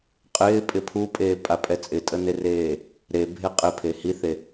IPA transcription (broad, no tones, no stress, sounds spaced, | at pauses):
qʼ ɪː pʼ ɪ pʰ u pʼ eː pʼ a pʼ ɛ t͡sʼ ɪ tʼ ə n e r eː | ɾ e bʱ e qʼ ɪ pʰ e h i θ e